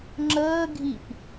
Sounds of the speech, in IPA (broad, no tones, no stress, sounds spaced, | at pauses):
ŋ͡ǁ əː ɡʱ i p